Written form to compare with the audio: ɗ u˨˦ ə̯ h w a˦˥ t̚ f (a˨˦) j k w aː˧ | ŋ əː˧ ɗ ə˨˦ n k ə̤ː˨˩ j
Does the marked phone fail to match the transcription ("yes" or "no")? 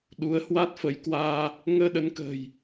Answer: yes